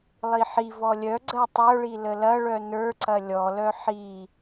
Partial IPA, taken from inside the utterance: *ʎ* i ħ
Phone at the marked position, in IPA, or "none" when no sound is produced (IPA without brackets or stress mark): lˠ